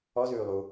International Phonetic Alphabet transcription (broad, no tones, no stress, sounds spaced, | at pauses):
ɔ z ʉː lˠ u